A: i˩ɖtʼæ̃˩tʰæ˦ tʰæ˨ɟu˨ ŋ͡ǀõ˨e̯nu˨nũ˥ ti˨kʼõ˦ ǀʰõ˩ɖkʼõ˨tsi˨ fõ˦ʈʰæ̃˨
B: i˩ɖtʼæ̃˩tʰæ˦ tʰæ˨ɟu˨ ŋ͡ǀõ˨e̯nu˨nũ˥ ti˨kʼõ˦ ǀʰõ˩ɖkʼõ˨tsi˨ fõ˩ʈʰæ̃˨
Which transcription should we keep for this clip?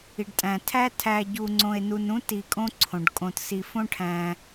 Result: A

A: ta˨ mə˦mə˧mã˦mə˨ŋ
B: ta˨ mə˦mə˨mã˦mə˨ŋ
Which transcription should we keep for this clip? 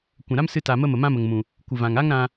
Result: B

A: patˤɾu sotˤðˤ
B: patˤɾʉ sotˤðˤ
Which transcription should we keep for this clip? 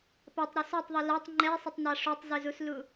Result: A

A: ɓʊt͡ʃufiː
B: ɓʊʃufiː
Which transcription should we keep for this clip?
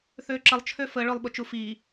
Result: A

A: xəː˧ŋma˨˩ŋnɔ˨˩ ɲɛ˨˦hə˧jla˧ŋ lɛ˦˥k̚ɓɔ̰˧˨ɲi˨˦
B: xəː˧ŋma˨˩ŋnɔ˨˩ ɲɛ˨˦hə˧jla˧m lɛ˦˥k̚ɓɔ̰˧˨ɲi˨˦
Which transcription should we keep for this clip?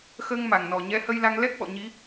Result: A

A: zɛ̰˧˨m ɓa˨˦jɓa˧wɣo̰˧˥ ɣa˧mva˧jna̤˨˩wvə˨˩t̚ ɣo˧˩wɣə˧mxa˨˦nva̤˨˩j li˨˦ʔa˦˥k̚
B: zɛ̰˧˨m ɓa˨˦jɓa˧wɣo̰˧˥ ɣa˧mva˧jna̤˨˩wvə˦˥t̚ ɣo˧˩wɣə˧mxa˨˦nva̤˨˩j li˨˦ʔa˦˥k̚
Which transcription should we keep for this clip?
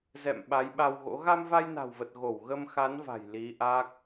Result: A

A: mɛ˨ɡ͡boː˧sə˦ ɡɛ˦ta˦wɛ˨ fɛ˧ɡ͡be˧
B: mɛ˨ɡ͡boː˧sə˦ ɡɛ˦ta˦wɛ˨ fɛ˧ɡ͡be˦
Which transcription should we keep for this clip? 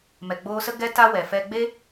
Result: B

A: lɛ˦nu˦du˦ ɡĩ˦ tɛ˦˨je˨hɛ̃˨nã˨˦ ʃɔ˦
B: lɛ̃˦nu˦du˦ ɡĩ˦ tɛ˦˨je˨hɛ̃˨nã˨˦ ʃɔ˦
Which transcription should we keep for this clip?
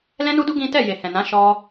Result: B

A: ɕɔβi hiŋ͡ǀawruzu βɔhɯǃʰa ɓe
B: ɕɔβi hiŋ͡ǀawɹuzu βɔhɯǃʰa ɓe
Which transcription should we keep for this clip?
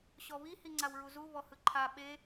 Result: B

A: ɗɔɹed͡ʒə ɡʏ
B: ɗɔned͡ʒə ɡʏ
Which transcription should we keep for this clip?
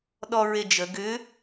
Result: A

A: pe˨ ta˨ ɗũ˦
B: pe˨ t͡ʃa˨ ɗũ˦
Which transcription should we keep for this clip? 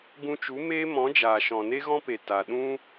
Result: A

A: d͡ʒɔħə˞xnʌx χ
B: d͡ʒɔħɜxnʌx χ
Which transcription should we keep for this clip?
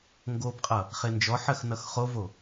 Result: B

